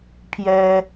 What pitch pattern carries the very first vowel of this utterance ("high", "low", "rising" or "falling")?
high